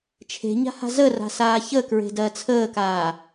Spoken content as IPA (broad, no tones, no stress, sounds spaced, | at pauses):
t͡ʃʰ e̤ ɲ a̤ h a̤ z ə r a̤ s aː ç ə k ɹ e̤ d ɜ t͡sʰ əː k aː